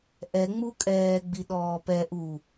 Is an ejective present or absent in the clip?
present